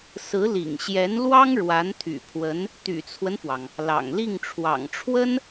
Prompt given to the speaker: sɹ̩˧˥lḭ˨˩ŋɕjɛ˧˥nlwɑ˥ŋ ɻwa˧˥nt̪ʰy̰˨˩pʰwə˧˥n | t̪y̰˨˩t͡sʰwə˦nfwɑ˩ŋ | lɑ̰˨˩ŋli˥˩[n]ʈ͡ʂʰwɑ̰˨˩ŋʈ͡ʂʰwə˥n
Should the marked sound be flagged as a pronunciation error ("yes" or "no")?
yes